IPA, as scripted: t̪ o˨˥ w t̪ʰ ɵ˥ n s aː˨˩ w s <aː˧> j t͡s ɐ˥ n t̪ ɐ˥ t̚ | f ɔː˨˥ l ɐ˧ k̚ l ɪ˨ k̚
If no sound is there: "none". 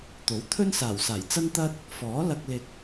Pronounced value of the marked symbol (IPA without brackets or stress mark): aː˨˩